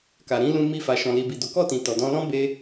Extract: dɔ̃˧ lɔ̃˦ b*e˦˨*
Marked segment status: incorrect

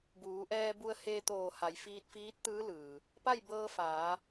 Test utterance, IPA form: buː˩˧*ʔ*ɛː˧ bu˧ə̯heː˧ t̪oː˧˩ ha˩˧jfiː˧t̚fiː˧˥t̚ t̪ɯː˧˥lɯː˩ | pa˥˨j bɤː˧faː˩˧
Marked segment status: correct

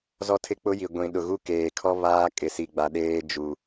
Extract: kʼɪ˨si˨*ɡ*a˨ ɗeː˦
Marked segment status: incorrect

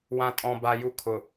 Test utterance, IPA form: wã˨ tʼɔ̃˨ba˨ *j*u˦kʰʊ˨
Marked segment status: correct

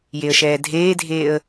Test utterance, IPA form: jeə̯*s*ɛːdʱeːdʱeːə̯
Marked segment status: incorrect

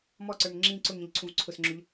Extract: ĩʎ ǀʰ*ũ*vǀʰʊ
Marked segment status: correct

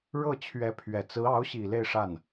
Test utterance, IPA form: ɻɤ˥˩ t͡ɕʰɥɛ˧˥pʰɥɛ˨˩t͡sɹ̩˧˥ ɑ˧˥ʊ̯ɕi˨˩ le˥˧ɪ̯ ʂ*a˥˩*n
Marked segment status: correct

